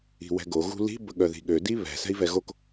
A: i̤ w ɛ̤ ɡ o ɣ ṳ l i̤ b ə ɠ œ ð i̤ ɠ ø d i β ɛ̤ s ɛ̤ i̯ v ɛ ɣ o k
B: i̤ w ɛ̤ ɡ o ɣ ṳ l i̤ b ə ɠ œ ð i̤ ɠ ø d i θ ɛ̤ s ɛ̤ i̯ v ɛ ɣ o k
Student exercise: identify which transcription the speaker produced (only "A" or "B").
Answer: A